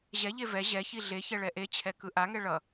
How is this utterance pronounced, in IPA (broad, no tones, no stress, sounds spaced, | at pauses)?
ʑ ɛ ʎ e v ɛ ʑ ɛ ç i ɮ e ç ɛ ɭ ɛ ʔ e t͡ɕʰ ɛ k ɯ ʔ a ŋ ɛ ɭ ʌ